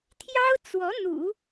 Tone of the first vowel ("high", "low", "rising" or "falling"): high